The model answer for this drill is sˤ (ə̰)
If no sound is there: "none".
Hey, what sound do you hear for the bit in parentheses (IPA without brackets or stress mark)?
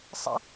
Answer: ə̰